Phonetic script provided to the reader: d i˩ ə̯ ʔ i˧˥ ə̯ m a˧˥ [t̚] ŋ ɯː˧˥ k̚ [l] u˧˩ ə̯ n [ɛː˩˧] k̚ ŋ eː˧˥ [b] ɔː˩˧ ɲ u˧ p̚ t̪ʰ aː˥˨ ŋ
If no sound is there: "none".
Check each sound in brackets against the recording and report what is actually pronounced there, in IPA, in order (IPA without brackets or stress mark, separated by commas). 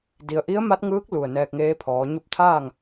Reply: t̚, l, ɛː˧, pʰ